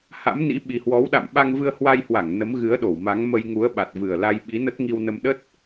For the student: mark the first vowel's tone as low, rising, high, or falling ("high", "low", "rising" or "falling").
rising